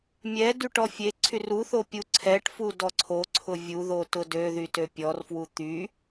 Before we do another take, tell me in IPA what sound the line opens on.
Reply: mʲ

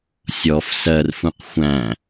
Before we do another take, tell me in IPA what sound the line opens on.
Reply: sʲ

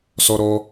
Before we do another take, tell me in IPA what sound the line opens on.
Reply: s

